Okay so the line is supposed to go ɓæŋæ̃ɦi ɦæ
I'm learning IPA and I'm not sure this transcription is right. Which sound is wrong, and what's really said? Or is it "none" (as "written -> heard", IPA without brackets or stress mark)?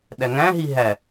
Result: ɓ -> ɗ